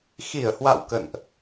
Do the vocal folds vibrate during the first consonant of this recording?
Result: no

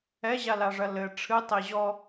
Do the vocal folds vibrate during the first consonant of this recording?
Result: yes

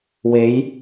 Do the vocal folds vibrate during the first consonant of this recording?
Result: yes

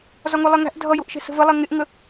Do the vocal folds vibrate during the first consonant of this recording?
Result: yes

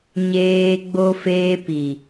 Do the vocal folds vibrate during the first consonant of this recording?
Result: yes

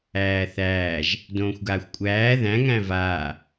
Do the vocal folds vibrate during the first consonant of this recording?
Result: no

